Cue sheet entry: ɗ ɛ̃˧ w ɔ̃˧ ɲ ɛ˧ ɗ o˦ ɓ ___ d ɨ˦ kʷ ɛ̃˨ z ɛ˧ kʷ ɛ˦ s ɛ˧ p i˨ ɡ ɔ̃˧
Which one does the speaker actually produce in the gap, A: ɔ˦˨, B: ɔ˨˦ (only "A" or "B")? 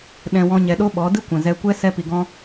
B